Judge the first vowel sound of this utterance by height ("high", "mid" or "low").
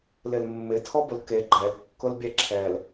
high